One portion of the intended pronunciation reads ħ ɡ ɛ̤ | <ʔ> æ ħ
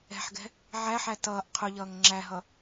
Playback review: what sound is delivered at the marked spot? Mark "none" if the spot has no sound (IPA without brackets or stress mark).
ʕ